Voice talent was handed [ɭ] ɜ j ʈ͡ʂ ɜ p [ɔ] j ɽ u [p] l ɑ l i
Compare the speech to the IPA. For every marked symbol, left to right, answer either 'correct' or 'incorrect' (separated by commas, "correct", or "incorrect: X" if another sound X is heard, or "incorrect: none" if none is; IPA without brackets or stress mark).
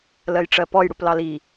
incorrect: l, correct, correct